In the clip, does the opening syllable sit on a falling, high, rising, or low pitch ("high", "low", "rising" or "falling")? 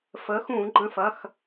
rising